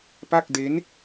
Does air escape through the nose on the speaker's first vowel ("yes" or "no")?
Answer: no